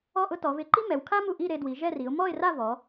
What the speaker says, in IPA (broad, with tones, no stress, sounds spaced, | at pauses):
ɔ˥˧ ʔ ʊ˥ t ɔ˩˧ v ɪ˧ ǃ i˥ m ɛ˩˧ w kʰ a˥ m u˧˩ ʔ i˥˧ ɾ e˧ d w i˩˧ ʒ ɛ˥˧ r i˩˧ ʊ̯ m ɔ˥˧ ɪ̯ r a˥˧ v ɔ˩˧